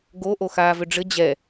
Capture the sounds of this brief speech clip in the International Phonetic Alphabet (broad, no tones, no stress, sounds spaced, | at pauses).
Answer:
ɡ o ʔ o x aː v ʏ ɖ͡ʐ ɘ d͡ʑ ɛ